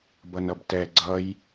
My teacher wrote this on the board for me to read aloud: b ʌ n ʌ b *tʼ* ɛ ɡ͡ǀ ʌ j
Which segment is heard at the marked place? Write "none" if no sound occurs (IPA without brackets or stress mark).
t